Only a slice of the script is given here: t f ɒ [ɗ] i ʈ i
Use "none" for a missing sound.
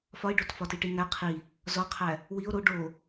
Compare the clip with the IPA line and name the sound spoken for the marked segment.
t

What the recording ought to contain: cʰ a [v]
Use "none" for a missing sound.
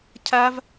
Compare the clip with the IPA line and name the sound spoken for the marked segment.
v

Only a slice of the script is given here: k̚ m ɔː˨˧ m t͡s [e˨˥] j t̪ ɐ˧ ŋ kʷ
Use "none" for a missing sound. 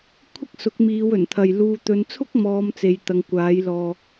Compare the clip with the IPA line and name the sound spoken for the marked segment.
e˧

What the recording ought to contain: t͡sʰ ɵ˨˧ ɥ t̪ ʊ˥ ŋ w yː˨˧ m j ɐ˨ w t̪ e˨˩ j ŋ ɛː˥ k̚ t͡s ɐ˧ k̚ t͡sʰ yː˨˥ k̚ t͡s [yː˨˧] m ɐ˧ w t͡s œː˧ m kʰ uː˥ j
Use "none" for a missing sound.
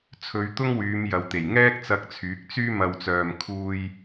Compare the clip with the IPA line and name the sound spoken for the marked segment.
yː˥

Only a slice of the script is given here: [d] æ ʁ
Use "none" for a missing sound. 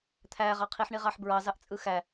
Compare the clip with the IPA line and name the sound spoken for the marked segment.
t̪ʰ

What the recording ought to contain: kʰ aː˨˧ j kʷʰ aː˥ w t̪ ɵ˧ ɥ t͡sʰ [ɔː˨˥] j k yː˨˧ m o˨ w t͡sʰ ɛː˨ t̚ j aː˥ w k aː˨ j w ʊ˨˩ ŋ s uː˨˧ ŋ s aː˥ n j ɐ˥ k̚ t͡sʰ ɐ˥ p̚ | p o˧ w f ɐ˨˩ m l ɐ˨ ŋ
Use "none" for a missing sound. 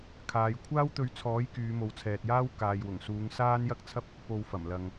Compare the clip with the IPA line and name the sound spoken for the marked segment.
ɔː˨˥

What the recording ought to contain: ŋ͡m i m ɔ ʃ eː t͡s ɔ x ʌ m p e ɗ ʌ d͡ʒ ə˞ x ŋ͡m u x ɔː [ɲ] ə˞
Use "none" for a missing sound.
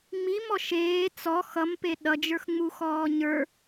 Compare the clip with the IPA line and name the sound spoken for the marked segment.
ɲ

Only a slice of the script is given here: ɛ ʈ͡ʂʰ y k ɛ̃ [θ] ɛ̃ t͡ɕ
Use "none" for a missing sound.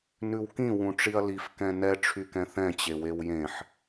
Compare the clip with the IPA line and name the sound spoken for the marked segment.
θ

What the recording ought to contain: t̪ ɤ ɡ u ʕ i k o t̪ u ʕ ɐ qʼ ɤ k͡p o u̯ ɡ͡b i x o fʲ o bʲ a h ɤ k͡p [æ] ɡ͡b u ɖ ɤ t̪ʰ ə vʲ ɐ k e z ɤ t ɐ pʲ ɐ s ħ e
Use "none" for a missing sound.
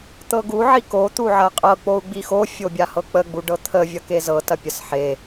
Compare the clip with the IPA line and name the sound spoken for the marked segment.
ə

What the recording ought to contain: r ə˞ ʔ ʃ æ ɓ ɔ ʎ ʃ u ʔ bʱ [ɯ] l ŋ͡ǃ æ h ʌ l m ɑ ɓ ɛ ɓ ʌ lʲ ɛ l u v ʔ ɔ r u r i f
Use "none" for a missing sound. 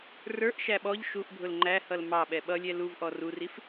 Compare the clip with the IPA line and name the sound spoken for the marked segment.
ʊ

